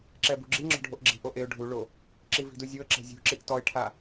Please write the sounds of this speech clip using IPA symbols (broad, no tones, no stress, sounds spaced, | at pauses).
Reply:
ǁ ɛ b ṳ ɡ͡ǁ i ŋ͡ǁ ɔ̤ ɖʱ o ʔ ɡ͡ǁ i̤ ʔ o ʔ e ʊ̯ ɖʱ u ɭ o | ǁ i v i̤ d u zʲ o ə̯ ǁ ɛ̤ zʲ ṳ ǁ i ʔ t ɔ ɪ̯ ʈʰ a